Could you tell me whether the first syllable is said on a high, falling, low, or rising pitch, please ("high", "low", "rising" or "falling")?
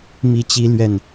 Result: rising